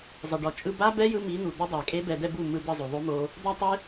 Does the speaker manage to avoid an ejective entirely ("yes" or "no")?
no